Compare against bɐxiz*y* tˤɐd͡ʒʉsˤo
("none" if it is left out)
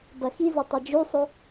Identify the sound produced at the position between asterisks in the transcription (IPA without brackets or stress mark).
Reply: e